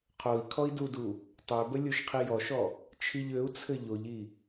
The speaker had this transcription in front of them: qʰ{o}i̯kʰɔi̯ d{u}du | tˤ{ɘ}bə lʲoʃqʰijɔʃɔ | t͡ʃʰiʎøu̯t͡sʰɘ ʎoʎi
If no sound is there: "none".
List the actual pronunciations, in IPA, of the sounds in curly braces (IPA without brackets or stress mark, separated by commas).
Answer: o, u, ø